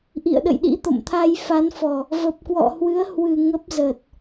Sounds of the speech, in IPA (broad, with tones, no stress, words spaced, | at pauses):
ʔḭ˧˨ə̯ɗə̰˧˨jɗḭ˧˥ t̪o̰˧˨mt̪ʰa˧jfa˨˦nfɔ˨˩ | və˨˩p̚kwɔ̰˧˨hwɨ˨˦ə̯hwɨ˨˩ ŋə˦˥p̚zə˨˩t̚